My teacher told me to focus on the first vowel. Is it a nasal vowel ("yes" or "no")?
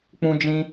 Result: yes